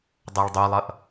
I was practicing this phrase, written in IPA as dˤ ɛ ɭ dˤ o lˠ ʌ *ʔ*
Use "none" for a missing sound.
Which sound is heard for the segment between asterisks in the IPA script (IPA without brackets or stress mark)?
ʔ